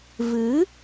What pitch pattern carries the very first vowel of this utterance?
rising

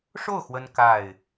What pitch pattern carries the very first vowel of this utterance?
falling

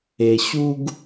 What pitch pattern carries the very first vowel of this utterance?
low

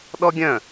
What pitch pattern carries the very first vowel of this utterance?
high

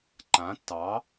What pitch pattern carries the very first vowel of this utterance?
rising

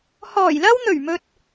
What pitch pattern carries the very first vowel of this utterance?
low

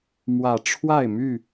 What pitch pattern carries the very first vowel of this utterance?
low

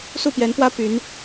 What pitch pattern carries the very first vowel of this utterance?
falling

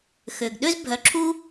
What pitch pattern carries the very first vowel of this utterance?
low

